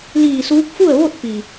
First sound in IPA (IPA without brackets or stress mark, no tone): l